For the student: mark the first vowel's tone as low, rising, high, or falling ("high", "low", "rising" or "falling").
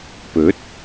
rising